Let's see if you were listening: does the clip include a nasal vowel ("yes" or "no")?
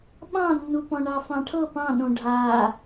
yes